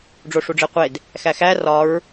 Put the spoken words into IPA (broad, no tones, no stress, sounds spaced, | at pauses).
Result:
ɖ͡ʐ o ʂ u ɖ͡ʐ e qʷ e d | x æ x æ r ɒ ɹ